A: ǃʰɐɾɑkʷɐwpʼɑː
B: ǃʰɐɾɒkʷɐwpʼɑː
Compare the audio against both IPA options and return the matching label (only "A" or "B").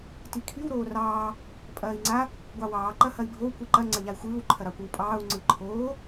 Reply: A